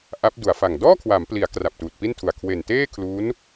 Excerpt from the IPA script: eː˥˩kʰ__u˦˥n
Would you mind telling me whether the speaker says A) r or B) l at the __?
B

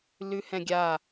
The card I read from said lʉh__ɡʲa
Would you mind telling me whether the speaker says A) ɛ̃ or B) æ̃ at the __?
A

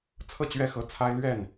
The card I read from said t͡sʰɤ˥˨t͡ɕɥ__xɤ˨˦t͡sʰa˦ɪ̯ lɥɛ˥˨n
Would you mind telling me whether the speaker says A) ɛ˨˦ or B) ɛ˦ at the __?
B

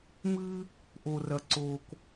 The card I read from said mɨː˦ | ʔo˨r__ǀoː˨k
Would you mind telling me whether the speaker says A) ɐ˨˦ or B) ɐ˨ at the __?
B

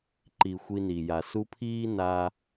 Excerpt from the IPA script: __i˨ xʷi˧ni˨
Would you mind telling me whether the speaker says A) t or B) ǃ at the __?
B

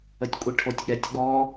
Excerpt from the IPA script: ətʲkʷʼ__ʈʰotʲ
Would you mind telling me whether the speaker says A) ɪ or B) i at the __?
B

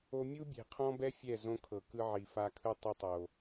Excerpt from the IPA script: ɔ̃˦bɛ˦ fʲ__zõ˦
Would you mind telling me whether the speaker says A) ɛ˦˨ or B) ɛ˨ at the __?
A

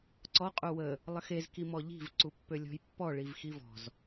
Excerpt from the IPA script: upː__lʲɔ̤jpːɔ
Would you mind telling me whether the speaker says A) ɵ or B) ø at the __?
B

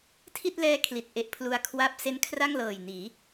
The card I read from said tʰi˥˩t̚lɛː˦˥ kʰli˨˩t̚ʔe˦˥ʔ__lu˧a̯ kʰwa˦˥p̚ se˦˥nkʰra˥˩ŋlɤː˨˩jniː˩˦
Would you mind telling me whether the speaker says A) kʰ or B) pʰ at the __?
B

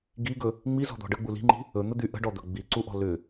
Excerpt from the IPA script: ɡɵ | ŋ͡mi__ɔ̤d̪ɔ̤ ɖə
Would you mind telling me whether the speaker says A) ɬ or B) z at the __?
B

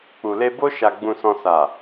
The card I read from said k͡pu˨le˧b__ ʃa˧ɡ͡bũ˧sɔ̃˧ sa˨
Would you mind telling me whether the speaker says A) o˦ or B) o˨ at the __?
A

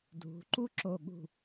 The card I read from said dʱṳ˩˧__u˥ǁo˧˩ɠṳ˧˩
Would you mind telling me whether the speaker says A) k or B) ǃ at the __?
B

